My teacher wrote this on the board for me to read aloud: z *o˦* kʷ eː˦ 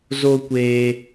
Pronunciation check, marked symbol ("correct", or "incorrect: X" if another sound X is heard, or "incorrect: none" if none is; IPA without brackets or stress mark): correct